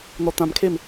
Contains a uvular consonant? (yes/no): no